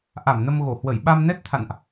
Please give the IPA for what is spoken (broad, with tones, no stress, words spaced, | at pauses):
ʔa˧˩mnə˧mɣo˧˩hwə˧˩j ɓa˧mnɛ˦˥t̚t̪ʰa̰˧˨nʔ